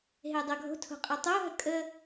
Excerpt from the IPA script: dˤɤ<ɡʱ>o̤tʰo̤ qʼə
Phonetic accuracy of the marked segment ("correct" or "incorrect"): correct